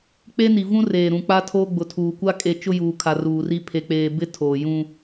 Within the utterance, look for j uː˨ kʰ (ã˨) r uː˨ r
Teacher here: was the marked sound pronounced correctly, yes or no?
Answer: no